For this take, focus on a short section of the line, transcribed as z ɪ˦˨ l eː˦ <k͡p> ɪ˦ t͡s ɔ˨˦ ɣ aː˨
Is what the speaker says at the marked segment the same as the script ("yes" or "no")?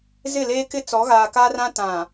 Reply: no